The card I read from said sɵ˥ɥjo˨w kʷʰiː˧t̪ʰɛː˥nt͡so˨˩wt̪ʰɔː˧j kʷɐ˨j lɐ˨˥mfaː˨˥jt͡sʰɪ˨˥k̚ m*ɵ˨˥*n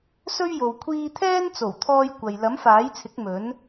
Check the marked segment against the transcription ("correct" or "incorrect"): correct